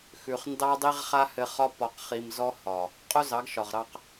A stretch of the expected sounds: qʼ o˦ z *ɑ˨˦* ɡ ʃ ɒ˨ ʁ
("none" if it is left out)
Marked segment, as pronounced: ɑ˨˦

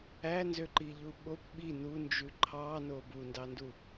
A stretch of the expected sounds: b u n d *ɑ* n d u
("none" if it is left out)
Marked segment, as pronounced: ɑ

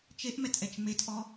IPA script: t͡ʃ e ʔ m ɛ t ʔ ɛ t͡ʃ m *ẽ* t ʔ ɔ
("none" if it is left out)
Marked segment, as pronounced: e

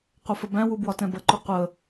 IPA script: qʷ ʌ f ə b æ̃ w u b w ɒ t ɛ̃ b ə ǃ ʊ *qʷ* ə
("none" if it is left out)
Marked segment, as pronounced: qʷ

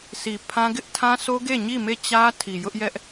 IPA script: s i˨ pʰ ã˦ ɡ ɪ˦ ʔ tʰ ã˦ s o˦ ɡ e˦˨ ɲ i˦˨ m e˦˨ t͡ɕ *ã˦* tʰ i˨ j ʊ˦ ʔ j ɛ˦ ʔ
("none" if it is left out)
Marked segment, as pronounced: ä˦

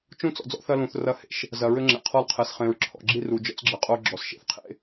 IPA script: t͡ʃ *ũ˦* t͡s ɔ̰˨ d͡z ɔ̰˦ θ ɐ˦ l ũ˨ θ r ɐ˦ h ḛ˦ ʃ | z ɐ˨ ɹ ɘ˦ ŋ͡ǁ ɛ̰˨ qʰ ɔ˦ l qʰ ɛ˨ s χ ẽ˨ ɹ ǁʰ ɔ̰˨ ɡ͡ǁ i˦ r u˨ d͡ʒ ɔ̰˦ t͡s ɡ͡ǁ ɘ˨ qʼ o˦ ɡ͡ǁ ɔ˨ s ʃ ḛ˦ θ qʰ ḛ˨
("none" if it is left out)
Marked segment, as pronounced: ũ˦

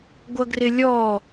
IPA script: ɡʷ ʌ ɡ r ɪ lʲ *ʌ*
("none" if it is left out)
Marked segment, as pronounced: ɔ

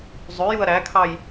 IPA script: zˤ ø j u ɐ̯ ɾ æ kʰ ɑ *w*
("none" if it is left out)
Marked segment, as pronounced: j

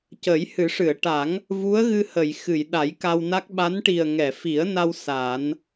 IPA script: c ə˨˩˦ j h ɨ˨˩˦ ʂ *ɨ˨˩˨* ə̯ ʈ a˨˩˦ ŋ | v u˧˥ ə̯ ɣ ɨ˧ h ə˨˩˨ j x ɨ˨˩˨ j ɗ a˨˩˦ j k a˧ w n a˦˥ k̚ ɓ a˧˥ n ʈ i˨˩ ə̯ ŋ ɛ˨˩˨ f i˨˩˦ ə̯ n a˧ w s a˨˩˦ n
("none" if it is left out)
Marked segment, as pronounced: ɨ˨˩˨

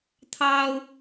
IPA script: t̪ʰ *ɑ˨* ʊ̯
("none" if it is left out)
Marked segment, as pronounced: ɑ˥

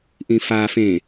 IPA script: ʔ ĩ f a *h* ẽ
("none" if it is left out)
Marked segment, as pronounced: f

